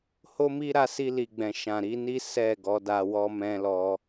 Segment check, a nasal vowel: present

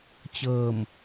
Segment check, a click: absent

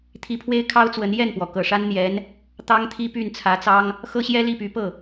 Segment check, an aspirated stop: present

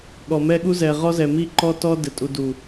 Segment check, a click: present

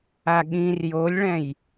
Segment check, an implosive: present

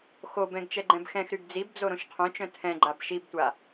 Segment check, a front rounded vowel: present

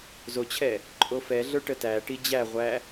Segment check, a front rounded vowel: absent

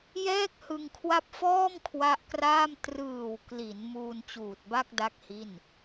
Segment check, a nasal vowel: absent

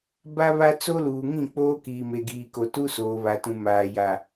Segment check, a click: absent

